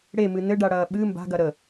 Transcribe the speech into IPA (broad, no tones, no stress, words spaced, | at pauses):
ɽemɨ nɘɖaɽɐː ɓɨ mba̤ɡɐ ɾə